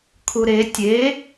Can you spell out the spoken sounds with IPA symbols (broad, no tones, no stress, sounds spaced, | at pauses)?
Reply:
kʰ u ɾ e tʲ e